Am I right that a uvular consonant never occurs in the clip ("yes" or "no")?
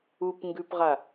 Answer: no